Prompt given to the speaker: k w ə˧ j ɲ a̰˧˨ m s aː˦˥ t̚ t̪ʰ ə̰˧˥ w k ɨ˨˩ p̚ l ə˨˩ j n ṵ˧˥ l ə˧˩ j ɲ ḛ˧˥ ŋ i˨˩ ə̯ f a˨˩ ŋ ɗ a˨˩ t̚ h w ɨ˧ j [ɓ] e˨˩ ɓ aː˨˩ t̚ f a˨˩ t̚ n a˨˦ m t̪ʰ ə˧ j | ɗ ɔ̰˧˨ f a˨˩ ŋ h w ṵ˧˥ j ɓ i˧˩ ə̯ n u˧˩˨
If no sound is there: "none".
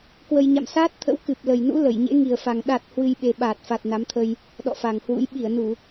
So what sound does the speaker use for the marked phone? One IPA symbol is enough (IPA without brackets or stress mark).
ɓ